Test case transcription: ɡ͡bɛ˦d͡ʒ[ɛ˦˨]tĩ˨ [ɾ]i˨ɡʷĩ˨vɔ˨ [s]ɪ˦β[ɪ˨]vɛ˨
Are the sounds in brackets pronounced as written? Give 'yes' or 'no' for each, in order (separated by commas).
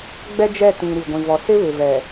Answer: yes, yes, yes, yes